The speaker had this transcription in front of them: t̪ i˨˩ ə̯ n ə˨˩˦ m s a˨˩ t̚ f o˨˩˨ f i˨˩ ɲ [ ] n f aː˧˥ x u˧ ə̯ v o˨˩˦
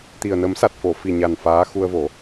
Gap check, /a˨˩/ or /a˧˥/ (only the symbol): a˨˩